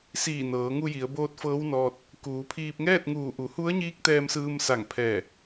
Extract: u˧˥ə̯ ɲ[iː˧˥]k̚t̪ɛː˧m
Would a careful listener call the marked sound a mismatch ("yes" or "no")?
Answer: no